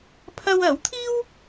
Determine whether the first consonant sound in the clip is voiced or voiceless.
voiceless